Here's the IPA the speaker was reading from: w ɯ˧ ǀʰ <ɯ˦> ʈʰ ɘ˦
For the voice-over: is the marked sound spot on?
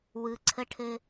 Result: no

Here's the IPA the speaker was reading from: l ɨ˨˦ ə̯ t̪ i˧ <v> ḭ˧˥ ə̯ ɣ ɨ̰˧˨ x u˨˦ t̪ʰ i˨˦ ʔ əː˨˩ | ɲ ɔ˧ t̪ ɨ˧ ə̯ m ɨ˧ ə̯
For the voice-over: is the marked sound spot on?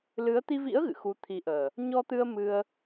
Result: yes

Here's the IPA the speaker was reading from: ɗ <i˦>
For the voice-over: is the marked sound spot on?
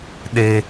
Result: no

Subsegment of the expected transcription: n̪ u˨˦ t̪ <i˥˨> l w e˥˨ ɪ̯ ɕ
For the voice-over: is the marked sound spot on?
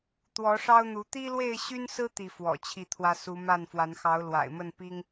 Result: no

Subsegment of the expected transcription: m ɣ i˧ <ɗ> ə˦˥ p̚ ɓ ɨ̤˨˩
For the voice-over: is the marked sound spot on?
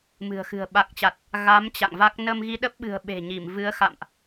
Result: yes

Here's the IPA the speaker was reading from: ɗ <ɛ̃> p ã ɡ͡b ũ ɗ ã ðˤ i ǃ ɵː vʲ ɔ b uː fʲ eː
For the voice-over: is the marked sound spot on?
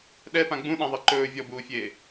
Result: no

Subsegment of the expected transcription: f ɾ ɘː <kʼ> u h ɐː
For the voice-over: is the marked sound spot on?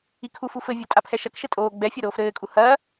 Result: yes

